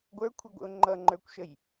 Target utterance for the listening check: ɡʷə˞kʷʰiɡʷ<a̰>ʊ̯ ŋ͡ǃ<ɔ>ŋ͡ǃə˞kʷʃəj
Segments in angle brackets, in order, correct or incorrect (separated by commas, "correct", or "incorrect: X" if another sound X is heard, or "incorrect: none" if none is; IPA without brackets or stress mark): incorrect: ə̰, incorrect: ʌ